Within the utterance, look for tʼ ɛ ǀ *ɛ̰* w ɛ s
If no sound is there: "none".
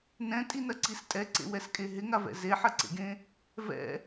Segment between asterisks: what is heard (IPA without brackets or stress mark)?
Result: ḛ